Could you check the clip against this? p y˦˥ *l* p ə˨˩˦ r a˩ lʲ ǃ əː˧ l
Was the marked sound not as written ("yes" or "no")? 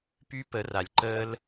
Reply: yes